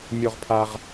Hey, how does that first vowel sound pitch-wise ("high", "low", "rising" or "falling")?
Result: high